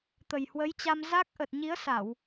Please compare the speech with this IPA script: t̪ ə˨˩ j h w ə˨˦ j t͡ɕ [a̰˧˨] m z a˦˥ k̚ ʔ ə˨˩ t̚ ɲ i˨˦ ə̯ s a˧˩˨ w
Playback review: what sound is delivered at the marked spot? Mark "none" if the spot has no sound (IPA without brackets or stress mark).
a˧